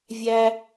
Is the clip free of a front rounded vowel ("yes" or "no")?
yes